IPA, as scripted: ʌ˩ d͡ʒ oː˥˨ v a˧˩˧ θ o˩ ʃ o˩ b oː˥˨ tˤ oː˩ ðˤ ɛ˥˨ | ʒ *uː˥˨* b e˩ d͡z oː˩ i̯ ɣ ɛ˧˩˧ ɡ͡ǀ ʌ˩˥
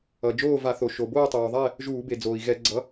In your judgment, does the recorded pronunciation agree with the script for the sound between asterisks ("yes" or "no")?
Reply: no